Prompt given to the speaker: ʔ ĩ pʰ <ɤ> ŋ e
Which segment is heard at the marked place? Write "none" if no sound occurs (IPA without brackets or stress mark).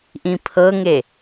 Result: ɤ